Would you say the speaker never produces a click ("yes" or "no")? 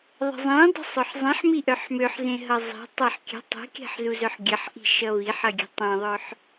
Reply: yes